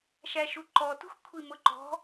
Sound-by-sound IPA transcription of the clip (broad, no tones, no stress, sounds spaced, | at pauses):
ʃ æ ʃ u ǃ ɔ t ṳ x kʷʰ i m ʊ ǃ ɔ̤